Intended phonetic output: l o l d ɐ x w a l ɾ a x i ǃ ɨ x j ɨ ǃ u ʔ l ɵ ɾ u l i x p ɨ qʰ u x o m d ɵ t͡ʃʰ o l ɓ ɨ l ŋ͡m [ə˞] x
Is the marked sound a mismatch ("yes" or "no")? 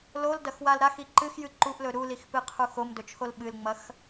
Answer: yes